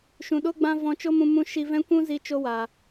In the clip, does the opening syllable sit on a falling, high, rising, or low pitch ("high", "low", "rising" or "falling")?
low